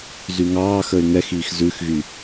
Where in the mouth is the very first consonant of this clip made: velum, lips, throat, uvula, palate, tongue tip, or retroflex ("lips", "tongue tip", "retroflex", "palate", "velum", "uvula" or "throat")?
tongue tip